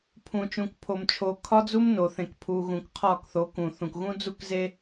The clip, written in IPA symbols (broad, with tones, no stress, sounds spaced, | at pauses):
pʰ ũ˨ t͡ʃ ũ˨ k pʰ o˨ m t͡ʃʰ o˨ kʰ ɒ˦ d͡z u˦ m n o˨ θ ẽ˨ k pʰ u˨ ɣ ũ˨ k qʰ ɒ˦˨ k θ o˨˦ k ũ˨ θ ũ˨ k ɣ ũ˦ d͡z u˦ k z e˦